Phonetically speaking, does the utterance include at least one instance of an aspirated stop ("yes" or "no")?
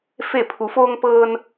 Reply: yes